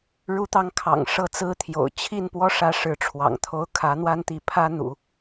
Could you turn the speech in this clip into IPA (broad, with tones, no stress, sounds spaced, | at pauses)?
ɻ u˧˥ t̪ ɑ˧˥ ŋ kʰ ɑ̰˨˩ ŋ ʂ ɤ˥˩ t͡s ɹ̩˥ t̪ʰ j o̰˨˩ ʊ̯ t͡ɕʰ i˥˩ n p w ɔ˥ ʂ ä˧˥ ʂ ɻ̩˧˥ ʈ͡ʂʰ w ɑ̰˨˩ ŋ t̪ʰ o˧˥ ʊ̯ kʰ ä˧˥ n̪ w a˥ n t̪ i˧˥ pʰ ä˥ n̪ ṵ˨˩˦